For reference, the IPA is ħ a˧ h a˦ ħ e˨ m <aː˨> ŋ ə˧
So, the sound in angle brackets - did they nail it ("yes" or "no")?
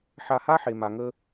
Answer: no